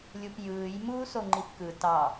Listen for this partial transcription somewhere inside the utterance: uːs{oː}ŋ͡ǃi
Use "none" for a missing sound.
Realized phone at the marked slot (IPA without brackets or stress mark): o